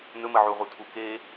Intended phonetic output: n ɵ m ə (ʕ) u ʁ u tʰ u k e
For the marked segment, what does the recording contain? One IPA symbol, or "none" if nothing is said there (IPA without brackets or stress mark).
ʕ